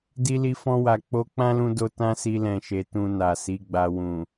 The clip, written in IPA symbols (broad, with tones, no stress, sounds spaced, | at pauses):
d i˧ l i˧ f ɔ̃˧ w a˨ k͡p o˧ k͡p ã˦ l ũ˧ d o˧ t ã˦ s i˧ l ɛ̃˨ ʃ e˨ t ũ˨ n a˨ s i˨˦ ɡ͡b a˧ w ũ˨